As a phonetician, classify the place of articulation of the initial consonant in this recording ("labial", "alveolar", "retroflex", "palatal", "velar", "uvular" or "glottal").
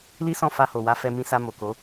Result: alveolar